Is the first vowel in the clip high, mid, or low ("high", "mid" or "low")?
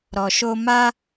mid